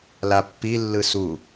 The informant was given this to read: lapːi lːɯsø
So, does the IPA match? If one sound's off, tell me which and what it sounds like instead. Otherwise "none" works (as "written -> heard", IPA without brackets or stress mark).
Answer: ø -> u